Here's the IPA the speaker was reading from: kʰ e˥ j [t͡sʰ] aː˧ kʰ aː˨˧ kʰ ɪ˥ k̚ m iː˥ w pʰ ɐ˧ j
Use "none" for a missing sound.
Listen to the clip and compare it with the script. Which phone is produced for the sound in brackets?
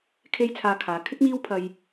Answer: t͡sʰ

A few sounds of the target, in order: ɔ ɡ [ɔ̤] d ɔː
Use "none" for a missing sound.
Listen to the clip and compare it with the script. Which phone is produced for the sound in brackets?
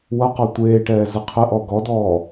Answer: ɔ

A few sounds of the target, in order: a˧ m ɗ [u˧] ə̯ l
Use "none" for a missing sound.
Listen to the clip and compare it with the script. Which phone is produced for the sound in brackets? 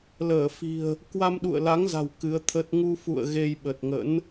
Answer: ṵ˧˨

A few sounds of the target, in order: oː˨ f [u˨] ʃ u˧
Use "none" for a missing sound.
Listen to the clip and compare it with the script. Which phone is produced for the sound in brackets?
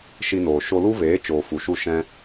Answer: u˨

